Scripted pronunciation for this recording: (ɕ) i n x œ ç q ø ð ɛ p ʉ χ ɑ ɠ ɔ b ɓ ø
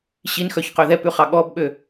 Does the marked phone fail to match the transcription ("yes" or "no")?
no